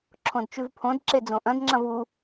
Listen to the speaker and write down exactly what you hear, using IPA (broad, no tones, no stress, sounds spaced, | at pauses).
ǁʰ õ d t͡ʃ ʉ v pʰ õ d ǁ e d͡z õ ʔ ɐ̃ d ŋ͡ǁ ɐ̃ v u